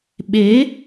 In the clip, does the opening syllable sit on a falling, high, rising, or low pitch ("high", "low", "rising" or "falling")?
rising